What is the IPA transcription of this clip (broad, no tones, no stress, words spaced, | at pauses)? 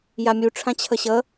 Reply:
jamʲu ʈ͡ʂʰãt͡ɕʰʌɕʌ